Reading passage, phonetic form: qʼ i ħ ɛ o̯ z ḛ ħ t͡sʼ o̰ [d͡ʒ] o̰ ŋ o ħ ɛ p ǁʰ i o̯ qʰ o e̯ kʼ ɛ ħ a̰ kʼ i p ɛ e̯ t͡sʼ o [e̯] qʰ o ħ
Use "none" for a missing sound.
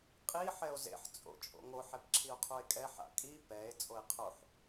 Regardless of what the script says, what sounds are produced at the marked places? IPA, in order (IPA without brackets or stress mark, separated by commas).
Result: t͡ʃʼ, e̯